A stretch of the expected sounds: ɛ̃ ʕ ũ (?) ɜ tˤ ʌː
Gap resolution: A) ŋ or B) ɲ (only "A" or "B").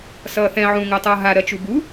A